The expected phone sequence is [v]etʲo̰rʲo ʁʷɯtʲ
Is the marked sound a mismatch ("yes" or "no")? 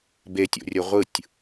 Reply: yes